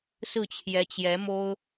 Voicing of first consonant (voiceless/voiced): voiceless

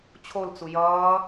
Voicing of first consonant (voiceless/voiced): voiceless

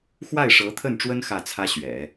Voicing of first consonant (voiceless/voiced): voiceless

